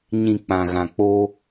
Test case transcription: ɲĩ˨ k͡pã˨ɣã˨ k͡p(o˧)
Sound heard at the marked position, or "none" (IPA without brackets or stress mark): o˧